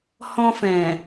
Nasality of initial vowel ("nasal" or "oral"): nasal